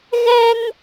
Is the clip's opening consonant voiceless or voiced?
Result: voiced